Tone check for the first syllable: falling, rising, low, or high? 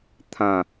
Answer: falling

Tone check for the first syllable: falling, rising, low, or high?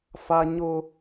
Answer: high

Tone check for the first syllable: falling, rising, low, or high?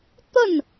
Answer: falling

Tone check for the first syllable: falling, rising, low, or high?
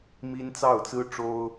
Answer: high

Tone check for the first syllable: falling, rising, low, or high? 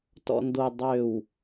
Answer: low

